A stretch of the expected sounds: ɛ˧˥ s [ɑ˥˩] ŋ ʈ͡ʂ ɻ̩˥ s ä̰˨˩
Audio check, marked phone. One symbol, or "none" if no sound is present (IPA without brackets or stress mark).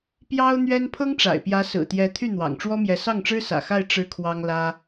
ɑ˥˩